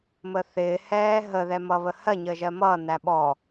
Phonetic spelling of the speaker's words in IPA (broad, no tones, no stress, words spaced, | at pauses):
məθɪː hɛːɦə ðɛmʌβəhɜ ɲəʒɜmʌ næɓɔ